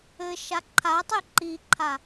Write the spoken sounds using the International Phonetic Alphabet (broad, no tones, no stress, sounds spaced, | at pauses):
ɘ ʃ a ǃʰ a tˤ e ǃ i ǃʰ a